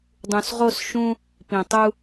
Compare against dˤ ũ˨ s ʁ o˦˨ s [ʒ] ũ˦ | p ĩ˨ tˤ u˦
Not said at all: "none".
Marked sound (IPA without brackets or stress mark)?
ʃ